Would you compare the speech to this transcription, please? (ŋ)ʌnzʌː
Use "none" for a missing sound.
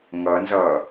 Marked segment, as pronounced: ŋ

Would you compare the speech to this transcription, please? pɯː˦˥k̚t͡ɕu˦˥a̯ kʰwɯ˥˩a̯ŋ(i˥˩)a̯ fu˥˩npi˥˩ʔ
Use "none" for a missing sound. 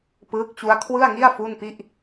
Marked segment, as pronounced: i˥˩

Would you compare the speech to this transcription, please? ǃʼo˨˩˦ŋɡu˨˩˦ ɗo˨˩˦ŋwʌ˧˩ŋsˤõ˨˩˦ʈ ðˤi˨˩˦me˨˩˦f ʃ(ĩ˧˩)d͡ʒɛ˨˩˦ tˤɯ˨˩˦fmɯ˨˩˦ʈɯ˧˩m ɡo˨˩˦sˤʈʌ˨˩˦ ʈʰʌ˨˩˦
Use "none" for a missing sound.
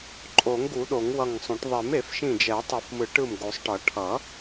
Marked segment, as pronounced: ĩ˧˩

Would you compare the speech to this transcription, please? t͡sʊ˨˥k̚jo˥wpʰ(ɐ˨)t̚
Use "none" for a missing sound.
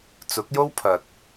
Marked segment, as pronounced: ɐ˨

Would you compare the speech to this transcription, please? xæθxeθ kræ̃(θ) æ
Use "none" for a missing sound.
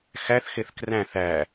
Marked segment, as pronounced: θ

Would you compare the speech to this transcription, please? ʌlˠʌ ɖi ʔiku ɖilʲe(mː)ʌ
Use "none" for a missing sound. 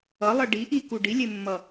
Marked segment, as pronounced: mː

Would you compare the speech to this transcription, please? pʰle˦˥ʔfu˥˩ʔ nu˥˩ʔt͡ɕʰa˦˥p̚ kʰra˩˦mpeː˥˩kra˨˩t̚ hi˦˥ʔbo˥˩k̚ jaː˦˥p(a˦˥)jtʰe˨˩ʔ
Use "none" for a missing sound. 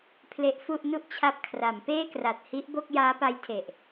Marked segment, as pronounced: a˦˥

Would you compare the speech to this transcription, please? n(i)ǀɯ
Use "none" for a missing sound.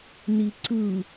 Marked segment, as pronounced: i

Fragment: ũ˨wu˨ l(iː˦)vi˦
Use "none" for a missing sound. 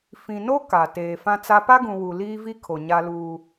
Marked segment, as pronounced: iː˦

